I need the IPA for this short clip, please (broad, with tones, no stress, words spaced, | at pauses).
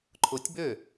ǃʰʊ˧˥tʲbø˥˩